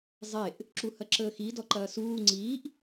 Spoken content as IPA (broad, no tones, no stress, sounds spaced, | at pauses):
zˤ e ʔ | ǁ u h ɐ ǁ əː x i d ɔ ǃ ɐː s uː ŋ͡ǀ iː ʔ